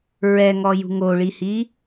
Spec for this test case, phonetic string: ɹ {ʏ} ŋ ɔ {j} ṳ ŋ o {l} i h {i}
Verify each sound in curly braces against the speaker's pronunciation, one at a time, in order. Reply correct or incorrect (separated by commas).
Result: incorrect, correct, incorrect, correct